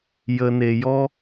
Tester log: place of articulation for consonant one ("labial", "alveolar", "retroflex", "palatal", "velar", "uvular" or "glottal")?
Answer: palatal